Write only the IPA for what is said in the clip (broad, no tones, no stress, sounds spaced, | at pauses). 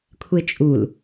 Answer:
kʷʰ e t͡ʃʼ u l